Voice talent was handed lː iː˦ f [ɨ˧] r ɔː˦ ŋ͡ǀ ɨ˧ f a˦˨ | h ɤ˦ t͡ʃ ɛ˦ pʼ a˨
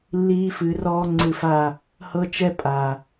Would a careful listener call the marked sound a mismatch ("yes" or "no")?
yes